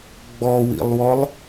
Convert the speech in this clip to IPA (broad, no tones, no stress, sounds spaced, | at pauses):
ɡ͡b ɔ w ḭ lˠ w ɔ lˠ